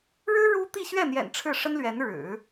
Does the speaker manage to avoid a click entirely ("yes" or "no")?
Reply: yes